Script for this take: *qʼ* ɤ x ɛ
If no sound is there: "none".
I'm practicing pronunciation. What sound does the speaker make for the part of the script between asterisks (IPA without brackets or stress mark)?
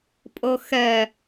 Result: pʼ